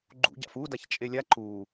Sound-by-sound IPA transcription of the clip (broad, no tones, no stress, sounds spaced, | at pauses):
ɡ͡ǃ ṵ ɟ a̰ f u d a ç t͡ʃʼ e lʲ a ǃ u